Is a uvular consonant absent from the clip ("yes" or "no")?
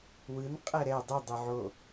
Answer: no